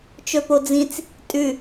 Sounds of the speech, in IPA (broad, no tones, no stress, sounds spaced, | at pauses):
t͡ʃ ɵ p o d͡z ĩ t͡s | tʼ ʉ